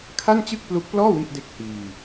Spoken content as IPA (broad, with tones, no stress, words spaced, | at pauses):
kʰa˥˩nt͡ɕɯ˥˩k̚plu˦˥k̚plɔː˥˩ wi˥˩ʔde˦˥k̚ hiː˧